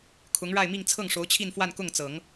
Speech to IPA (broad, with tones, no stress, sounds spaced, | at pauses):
kʰ ʊ˧˥ ŋ ɻ a˥˧ ɪ̯ m i˥˧ ŋ t͡sʰ ɤ˥˩ ŋ ʂ o˧˥ ʊ̯ t͡ɕʰ i˥˧ n f w a˥˧ n k ʊ˥˩ ŋ t͡s ɤ˨˩˦ ŋ